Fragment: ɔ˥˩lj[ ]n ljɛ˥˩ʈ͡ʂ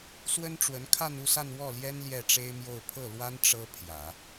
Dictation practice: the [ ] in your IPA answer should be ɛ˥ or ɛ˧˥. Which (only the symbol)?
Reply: ɛ˥